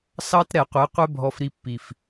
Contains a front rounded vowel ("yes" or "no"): no